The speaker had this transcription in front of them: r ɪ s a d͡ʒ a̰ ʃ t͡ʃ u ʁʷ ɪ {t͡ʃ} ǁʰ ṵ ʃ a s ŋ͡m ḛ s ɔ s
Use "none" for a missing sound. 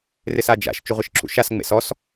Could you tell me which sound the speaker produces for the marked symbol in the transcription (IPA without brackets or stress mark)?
ʃ